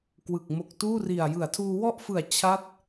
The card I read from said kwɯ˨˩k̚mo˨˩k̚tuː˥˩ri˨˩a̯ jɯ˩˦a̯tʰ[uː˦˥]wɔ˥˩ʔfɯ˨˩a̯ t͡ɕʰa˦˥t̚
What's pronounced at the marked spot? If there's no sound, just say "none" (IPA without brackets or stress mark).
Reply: uː˧